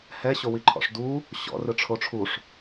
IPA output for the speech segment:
h ɛ ɕ o w i ǃʰ ɔ̰ ʂ d u | ɕ ɔ̰ r ɯ ʈ͡ʂʰ o ʈ͡ʂʰ u ʂ

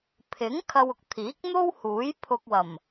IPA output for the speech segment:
pʰ ɪ˨˥ ŋ kʰ ɐ˧ w ʊ˨ k̚ t̪ʰ iː˨˥ k̚ n̪ o˥ w h uː˨˥ j pʰ ʊ˧ k̚ w ɐ˨˩ m

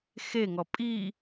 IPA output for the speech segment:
x e ŋ ɔ pʼ i

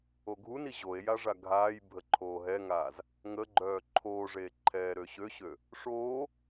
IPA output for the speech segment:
o ɡʱ u n i ʑ o e̯ j a ʐ a ɡʱ aː j bʱ ə ǃʰ oː ɦ ɛ ŋ aː z | ŋ ə ɡ͡ǃ œː ǃʰ oː ʐ eː ǃʰ ɛː ɾ ø ɕ ø ɕ ø | ʂ oː

